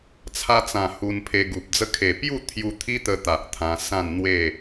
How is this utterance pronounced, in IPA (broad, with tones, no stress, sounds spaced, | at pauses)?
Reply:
t͡sʰ a˧ t͡s ã˨˩ h u˧ n pʰ e˧ ɡ u˨ p̚ d͡z ə˦ kʰ e˨˩ p j u˥˧ t̪ʰ j u˧ t̪ʰ i˦ t̪ ə˧ t̪ a˨ ʔ t̪ʰ ã˧ s ã˥˧ n n̪ w e˥˧